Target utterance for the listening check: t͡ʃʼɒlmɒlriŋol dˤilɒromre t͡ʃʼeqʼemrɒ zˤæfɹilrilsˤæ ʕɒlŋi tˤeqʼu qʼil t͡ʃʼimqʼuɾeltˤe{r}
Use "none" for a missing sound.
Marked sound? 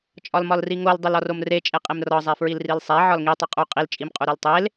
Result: l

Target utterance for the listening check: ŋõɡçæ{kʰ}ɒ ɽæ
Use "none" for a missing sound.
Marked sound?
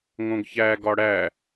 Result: ɡ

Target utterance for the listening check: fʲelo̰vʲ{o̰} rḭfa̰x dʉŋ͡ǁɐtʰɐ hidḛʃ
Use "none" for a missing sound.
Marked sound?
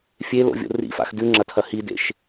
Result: o̰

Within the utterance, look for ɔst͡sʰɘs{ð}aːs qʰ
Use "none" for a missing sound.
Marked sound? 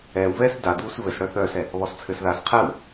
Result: ð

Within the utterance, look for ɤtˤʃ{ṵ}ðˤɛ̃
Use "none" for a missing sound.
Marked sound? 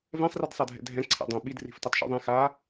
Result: ṵ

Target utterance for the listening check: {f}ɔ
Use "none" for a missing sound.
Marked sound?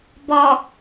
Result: b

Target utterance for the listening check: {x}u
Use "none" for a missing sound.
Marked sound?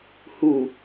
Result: h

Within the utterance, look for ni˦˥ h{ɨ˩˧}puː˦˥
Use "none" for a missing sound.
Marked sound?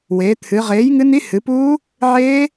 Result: ɨ˩˧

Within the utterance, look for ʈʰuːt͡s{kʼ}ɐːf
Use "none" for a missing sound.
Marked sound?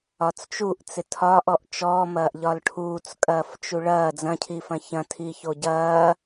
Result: kʼ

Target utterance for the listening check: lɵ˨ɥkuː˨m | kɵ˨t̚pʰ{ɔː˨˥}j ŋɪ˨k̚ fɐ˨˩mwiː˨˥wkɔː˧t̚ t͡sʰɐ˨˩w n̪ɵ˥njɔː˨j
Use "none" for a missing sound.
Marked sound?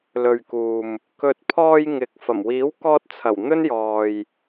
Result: ɔː˧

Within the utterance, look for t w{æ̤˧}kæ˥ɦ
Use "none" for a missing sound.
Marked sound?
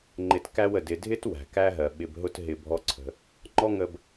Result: æ̤˩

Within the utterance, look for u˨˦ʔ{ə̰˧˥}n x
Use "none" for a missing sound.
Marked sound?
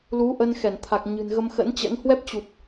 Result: ə˧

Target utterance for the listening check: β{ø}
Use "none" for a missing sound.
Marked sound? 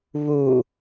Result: u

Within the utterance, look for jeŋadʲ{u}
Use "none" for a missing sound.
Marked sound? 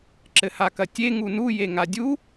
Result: u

